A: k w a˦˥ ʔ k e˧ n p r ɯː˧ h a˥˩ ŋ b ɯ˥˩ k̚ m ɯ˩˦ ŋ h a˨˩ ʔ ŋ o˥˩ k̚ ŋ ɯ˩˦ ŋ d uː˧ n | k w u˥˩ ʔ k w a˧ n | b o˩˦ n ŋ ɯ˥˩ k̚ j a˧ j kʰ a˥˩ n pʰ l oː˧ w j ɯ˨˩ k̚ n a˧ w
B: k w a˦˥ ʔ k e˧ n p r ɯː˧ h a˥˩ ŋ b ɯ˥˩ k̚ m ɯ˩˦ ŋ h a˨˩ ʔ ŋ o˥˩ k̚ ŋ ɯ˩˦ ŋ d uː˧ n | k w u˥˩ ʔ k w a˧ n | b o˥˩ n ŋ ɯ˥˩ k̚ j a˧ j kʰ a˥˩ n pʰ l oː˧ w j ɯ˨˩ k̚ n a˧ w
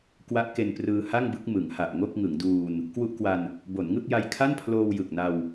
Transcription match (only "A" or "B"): A